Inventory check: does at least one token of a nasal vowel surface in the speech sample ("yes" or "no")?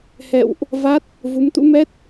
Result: no